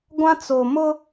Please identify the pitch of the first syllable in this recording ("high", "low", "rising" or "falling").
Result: high